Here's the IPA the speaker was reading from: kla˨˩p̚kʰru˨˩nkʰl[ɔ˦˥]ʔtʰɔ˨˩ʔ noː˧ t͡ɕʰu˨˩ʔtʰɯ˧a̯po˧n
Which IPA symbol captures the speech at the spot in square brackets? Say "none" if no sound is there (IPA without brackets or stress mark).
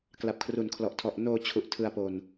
ɔ˨˩